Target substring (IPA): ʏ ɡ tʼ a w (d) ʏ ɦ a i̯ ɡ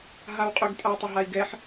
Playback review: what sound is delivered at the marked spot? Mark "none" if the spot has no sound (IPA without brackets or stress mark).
tˤ